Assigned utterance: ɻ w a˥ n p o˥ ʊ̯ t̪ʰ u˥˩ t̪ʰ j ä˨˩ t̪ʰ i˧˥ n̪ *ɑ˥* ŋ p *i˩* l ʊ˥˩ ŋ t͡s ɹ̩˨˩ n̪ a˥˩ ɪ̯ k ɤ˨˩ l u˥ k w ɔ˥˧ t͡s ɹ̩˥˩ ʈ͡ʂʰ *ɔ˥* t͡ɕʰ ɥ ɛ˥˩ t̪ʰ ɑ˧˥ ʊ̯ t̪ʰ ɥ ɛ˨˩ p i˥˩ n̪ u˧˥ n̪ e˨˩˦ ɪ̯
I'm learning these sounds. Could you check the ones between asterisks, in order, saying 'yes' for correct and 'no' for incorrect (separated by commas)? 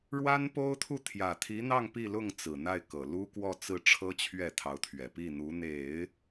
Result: no, no, no